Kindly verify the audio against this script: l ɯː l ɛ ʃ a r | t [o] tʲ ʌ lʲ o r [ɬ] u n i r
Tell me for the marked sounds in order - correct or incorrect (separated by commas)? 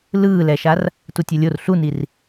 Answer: incorrect, correct